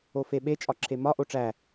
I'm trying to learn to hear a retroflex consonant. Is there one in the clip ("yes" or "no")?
yes